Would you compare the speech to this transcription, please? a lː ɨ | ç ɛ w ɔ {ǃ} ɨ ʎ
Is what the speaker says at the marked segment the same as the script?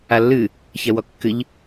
no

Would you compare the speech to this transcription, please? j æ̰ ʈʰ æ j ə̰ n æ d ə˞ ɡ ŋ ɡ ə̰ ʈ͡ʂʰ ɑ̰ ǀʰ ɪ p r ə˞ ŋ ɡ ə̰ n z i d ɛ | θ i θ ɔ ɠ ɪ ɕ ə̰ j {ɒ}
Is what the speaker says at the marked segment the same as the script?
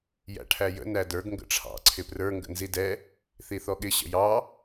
no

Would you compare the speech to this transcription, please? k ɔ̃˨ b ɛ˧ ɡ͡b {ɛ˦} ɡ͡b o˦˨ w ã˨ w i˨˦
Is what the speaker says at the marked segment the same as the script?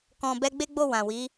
no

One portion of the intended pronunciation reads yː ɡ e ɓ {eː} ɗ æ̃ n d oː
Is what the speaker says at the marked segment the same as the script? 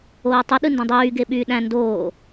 no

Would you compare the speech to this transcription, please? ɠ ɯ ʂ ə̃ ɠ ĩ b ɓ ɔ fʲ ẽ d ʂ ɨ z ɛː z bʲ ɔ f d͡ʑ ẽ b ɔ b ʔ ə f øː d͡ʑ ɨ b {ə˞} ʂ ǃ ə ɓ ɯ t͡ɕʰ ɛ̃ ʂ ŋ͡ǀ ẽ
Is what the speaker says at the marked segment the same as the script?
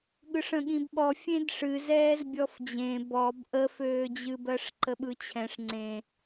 no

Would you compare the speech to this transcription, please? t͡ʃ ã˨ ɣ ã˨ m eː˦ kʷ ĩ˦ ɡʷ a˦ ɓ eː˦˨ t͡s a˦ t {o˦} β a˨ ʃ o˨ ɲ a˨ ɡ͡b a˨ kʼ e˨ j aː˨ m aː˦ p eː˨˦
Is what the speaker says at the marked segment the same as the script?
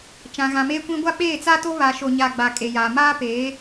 yes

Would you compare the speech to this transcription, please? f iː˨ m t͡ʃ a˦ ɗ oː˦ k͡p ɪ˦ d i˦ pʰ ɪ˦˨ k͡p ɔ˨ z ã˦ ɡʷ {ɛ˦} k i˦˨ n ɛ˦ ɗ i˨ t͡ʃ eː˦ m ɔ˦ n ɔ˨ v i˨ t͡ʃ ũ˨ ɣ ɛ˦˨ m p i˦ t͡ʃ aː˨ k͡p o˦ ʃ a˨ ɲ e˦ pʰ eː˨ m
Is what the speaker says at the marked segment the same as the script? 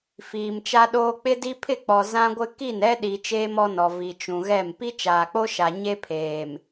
no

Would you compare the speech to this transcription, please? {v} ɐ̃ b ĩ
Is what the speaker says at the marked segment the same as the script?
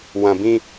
no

